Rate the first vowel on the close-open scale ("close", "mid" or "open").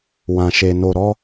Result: open